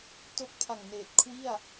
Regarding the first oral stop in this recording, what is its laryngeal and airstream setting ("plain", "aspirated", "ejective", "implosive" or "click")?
plain